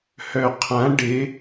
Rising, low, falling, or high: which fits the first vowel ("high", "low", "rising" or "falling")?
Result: low